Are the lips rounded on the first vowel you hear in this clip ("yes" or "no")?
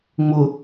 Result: yes